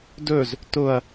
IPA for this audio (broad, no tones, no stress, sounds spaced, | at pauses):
d ɵ z | t ʊ ɐ̯